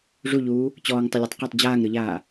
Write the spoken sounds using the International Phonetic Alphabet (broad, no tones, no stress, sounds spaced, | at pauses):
ʐ u ʎ uː | t͡ɕ ɔː ŋ tˤ ə lʲ ɯ tˤ q ə tˤ d͡ʑ aː ŋ ɾ ɯ ʎ aː